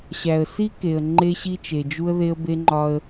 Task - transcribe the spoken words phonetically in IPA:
ɕ æ˨ ə̯ s i˦ k e˨ ə̯ ŋ͡ǃ e˦ ɕ i˦ t͡ʃ e˨ d͡ʒ u˦ ə̯ ð e˦ ə̯ b e˦ ŋ͡ǃ ɒ˦ ə̯

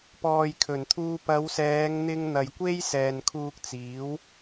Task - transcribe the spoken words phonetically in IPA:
p ɔː˨ j kʰ ɵ˨˩ n t̪ʰ uː˧ p ɐ˨˧ w s ɛː˨˧ ŋ n̪ ɪ˧ ŋ n̪ ɐ˨ j kʷ e˥ j s ɛː˨ n kʰ uː˧ k̚ t͡s iː˨˥ w

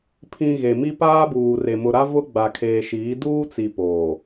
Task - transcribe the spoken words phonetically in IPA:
pʰ ĩ˨ ɣ e˨ m i˦ p aː˦ b uː˨ r e˨ m ʊ˨ ɾ a˦ v ʊ˦ ɡ͡b a˨ kʰ eː˨ ʃ iː˨˦ d uː˦ t͡s i˨ p oː˨

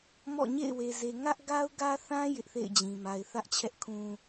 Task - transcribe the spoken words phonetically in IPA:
m ɔ̰˦˨ ɲ ḛ˦˨ ɪ̯ w e˨ z e˨ ŋ ä˦ ʔ ɡ a˦ ʊ̯ ɡ ä˦ θ ã˦ j ɪ˦ ʔ θ ḛ˦˨ ɪ̯ d͡ʑ ĩ˨ m a˨ ɪ̯ θ ä˦ ʔ t͡ɕʰ ɛ˦ ʔ kʰ ũ˦

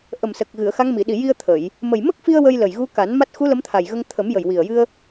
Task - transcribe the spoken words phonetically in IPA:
ʔ ə˨˩ m s ə˨˩ k̚ ɣ ɨ˨˩˨ ə̯ x a˧˥ ŋ m i˨˩˨ ɗ i˨˩ j i˧ ə̯ t̪ʰ ə˨˩˨ j | m ə˨˩ j m ə˦˥ k̚ f i˧ ə̯ w ə˧ j l ə˨˩ j ɣ u˧˥ k a˨˩˦ n m a˦˥ t̚ x u˧˥ l ə˧˥ m t̪ʰ a˨˩ j ɣ ə˧ ŋ t̪ʰ ə˨˩˦ m j ə˨˩ j w i˨˩ ə̯ j ɨ˧ ə̯

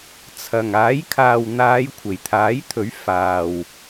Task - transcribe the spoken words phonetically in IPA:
t͡sʰ ɐ˨˩ ŋ aː˨˥ j kʰ aː˨ w n̪ aː˨˧ j kʷʰ e˨˩ j t̪ʰ aː˨˥ j t̪ʰ ɵ˨˥ ɥ f aː˨ w

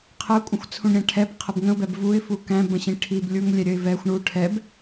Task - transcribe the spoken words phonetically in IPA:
qʰ ə ʊ̯ kʷʼ ə̃ xʷ t͡sʰ ũ ɳ ɾʲ æ̃ ʈʰ ɛ b qʰ ə b ŋ ə̃ ʊ̯ b ɛ b v u ɪ̯ f u k æ̃ b ə̃ ɕ ĩ ʈʰ i b lʲ u ŋ lʲ ɛ ɾʲ ə ɪ̯ v ɛ xʷ ɳ u ʈʰ ɛ b

